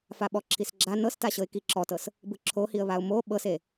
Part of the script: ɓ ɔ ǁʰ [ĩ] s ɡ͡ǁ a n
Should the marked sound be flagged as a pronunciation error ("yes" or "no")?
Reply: yes